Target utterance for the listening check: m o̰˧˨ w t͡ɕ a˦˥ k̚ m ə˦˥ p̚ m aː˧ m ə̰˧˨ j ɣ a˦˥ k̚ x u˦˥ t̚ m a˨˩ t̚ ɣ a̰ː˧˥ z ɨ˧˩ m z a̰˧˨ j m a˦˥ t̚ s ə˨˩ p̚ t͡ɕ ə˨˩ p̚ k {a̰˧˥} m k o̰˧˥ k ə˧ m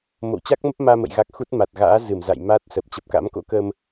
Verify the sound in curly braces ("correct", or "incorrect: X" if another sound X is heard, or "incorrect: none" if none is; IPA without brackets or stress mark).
correct